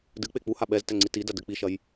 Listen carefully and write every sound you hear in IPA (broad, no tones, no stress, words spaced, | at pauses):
dɨ k͡pek͡puha ɓɛztɛ ŋ͡ǀitidɐ dɘk͡piʃɐj